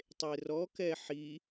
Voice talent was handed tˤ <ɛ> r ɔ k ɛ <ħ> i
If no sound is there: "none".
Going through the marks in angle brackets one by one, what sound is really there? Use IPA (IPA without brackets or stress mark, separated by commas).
e, ħ